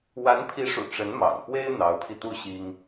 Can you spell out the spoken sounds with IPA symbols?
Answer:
w a˧˥ n pʰ i˧˥ ʂ ṵ˨˩ ʈ͡ʂ ə˧˥ n m ɑ̰˨˩ ŋ p w e˥ ɪ̯ n̪ ɑ˧˥ ʊ̯ pʰ i˧ t̪ u˥˩ ɕ i˥ ŋ

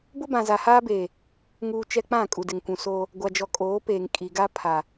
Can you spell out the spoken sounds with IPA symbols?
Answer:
b ʊ˦ b ã˨ z a˨ h aː˦ b eː˨ | ŋ uː˨ t͡ʃ ɛ˦ k͡p ã˦˨ kʼ u˨ d ɪ˨ ŋ kʷ ũ˨ s oː˦ | ɡʷ a˨ d͡ʒ ɔ˨ kʼ oː˨˦ p eː˨ ŋ kʼ i˨ ɡ a˦ pʰ a˨

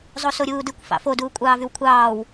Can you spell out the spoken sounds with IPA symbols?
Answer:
zˤ o s o ɾʲ uː d ɯ kʷ f ɑ̰ f o d uː kʷʼ ɑː v y w kʷʰ ɑː w

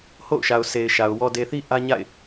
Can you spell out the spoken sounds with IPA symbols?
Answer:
h o̰˦˨ ʊ̯ ʃ a˨ ʊ̯ sʰ e˨ ɪ̯ ʃ a˨ ʊ̯ w ɔ˨ d e˨ θ i˦ ʔ ä˦ ɲ a̰˦˨ ɪ̯

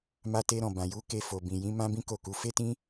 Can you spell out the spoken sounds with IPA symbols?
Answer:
m a˦ t e˦ ɾ ɔ̃˦˨ b ã˨ j u˨˦ k e˧ f o˨ b ĩ˨ j ĩ˨˦ m ã˦ b ĩ˦ k o˦˨ k u˨˦ f e˦ t ĩ˦

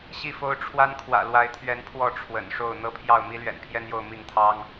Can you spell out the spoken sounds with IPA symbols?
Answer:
ɕ i˥˨ f o˦ ʊ̯ ʈ͡ʂʰ w a˦ n kʰ w ä̰˨˩ l w a˨˦ ɪ̯ t̪ʰ ɥ ɛ˨˦ n pʰ w ɔ˥˨ ʈ͡ʂʰ w ə̰˨˩ n ʂ o˥˨ ʊ̯ n̪ ɤ˥˨ pʰ j ɑ˥˨ ʊ̯ m i˦ l ɥ ɛ̰˨˩ n pʰ j ɛ˦ n j o˥˨ ʊ̯ m i˥˨ ŋ t̪ʰ ɑ˦ ŋ

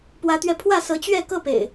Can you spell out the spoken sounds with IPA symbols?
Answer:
p w ä˨˦ t̪ ɥ ɛ˧ pʰ w ä˥˨ s ɤ˨˦ t͡ɕ ɥ ɛ˥˨ k ɤ˥˨ p ḛ˨˩ ɪ̯

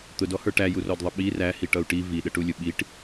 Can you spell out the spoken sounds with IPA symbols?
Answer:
t̪ ʊ d ɔ h ə˞ ʈ æ j u r ɔ d ðˤ ʌ ɓ i r æ h i ʈ ʌ u̯ ʈ i v i ɗ ə ʈ u lʲ ʊ ɓ i ʈ

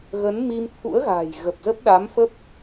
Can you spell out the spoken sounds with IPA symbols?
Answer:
ɣ ə˨˦ n m i˧ m t̪ʰ ṵ˧˥ ə̯ ɣ a̤ː˨˩ j ɣ ə˨˩ p̚ z ə˦˥ p̚ ɗ a˨˦ m f ə˦˥ p̚

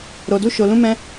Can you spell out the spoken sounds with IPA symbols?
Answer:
ɾ o˧ d u˦ ʃ o˧ l ũ˦ m ɛ̃˦

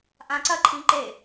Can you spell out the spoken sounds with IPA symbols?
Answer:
ʔ ã ǀ ɐ ǃʰ ĩ ǃ e

